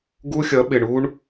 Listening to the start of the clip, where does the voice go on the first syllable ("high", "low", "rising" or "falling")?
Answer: high